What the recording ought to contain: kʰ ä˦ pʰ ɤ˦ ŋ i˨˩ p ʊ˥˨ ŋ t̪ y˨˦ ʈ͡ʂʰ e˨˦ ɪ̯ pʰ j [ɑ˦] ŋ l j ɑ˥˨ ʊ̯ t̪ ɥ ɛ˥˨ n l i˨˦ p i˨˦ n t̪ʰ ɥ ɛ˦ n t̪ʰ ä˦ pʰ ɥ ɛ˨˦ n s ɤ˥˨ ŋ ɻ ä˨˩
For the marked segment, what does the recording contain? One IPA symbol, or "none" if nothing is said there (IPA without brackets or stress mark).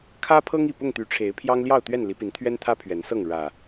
ɑ˦